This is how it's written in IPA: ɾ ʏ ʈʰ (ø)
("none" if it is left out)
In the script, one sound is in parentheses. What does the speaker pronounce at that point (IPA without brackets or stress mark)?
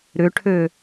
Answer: ø